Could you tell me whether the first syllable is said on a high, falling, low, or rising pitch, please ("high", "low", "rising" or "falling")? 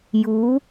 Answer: rising